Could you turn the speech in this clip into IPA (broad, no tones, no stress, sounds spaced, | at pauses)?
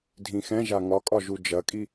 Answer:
dʱ ĩ x ɛ̃ ʒ a ŋ ɒ kʼ ɒ ʒ u d͡ʒ ɐ kʼ i